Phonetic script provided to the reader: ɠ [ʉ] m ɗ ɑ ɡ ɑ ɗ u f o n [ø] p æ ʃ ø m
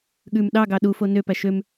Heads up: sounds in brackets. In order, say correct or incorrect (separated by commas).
correct, correct